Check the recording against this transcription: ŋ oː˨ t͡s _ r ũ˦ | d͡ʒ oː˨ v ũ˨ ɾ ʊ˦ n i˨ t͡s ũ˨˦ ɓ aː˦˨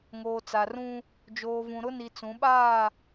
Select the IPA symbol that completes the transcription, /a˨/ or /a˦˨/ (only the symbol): a˨